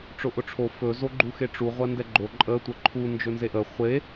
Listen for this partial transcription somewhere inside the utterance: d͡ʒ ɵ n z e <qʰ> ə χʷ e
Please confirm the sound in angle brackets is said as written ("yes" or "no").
no